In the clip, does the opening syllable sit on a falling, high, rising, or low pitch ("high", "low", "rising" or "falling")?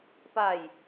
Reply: falling